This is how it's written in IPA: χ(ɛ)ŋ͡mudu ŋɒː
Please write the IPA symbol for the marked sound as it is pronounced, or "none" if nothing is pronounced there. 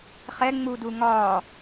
ɛ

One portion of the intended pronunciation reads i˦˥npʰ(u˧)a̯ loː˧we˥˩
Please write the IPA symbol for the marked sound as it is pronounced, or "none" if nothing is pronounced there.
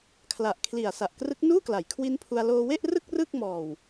u˧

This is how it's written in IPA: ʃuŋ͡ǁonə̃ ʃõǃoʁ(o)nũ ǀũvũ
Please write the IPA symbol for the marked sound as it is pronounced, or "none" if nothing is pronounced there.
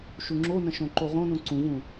õ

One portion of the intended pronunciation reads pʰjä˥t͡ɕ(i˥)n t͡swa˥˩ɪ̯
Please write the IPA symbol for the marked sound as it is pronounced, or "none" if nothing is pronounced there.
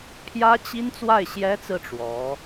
i˥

